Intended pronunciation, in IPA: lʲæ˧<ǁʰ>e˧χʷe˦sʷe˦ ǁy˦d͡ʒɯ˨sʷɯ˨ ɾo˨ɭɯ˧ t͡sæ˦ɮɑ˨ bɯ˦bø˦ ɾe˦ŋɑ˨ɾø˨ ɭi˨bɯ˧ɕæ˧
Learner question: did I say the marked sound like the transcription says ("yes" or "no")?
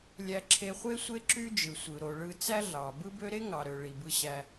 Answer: yes